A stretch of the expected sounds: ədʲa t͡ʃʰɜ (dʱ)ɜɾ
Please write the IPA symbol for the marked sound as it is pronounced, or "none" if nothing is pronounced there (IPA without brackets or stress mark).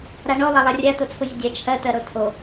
t